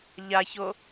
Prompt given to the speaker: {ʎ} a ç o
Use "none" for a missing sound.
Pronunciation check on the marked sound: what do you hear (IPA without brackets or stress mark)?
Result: ʎ